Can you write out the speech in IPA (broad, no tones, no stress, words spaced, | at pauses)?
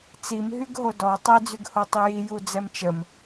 t͡simɦyɡ ɦodɔ tˤed͡zyɡ hotˤiji jud͡zɛmt͡ʃəm